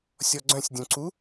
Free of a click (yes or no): no